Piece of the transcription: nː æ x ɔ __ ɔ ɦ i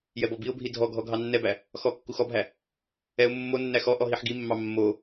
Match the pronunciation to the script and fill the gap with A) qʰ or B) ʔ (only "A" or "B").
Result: B